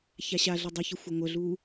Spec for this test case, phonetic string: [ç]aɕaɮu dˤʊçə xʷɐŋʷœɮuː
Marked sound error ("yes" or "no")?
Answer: no